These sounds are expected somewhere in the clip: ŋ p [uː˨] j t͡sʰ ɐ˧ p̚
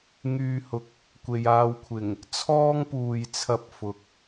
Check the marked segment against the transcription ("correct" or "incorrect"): correct